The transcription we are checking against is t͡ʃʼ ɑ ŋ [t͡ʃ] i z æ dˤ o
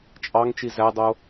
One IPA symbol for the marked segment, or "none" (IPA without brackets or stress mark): t͡ʃ